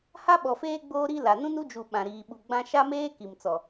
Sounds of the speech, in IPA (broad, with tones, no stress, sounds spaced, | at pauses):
h a˦ ɓ ɔ˨ f eː˦ ɡ͡b oː˦ ɾ i˦ l a˨ n ũ˦ n u˦ d͡ʒ u˨ ɓ ã˨ ɾ iː˨ ɓ u˨ ɡ͡b ã˦ ʃ a˦ m eː˦ k i˨ m t͡s ɔ˨